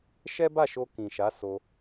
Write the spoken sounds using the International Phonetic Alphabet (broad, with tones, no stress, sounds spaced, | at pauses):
ʃ ɛ˦ b a˦˨ ʃ o˧ k ĩ˨ ʃ a˨˦ s o˧